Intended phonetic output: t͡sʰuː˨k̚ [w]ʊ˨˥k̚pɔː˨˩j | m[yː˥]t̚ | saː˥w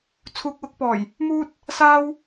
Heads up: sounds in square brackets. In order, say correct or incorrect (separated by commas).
correct, incorrect